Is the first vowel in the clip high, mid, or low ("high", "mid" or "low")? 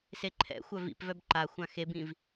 mid